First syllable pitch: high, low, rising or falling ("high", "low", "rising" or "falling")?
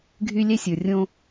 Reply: high